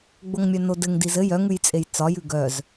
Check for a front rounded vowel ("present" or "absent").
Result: present